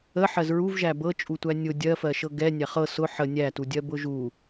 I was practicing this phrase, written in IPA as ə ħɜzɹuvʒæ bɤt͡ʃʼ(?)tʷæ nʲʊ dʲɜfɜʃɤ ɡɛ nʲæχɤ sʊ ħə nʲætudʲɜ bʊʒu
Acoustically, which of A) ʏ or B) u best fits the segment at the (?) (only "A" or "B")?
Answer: B